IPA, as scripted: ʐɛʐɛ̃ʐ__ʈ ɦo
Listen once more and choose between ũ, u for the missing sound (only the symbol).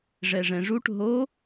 u